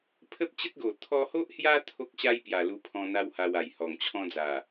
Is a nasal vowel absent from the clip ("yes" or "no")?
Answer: no